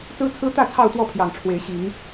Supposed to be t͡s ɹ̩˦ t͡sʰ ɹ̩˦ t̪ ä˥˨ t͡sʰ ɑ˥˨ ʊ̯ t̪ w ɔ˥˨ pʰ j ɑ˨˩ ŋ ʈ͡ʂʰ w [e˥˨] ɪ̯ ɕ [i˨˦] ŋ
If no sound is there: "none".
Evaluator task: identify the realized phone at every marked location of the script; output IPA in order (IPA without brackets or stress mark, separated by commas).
e˨˦, i˨˦